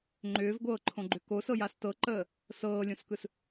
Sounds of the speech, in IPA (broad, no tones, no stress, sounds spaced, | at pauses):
ŋ͡ǃ ʏː v ɡʷ ɤː ǃʰ õ ɡ͡ǃ ʏ k o s ɤ j a s t ɤ ǃ əː | s ɤː lʲ õ s k ɯ s